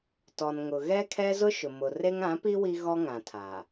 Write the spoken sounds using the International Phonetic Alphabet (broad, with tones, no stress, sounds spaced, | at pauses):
t ɔ˨ n ŋ ʊ˨ ɣ ɛ˦ kʰ ɛ˦ z ʊ˦ ʃ ʊ˨ m ʊ˨ r e˦ ŋ ã˨˦ p i˦ w i˦ ɣ ɔ˦ ŋ ã˨ tʰ a˨